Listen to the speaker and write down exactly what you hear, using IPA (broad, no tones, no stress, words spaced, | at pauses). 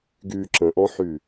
ɡyːǁə̃ʔɔ̃ħy